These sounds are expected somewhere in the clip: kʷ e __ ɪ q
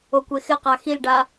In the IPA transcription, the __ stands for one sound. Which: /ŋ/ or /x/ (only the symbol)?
x